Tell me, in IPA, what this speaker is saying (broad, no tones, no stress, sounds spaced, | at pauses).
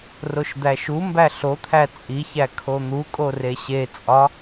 r o ʃ d̪ æ ʃ u m b æ ɬ o t̪ʰ æ t͡sʼ i ç æ kʰ o n̪ u kʼ o r e ɕ e t͡sʼ ɒ